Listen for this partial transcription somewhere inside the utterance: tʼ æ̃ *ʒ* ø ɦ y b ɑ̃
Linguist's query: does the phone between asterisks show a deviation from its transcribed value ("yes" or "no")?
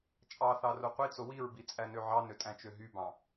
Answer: yes